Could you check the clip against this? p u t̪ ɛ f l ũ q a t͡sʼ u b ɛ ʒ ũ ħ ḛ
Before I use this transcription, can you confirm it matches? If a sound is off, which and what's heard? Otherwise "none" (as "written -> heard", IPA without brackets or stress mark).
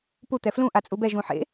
q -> ʔ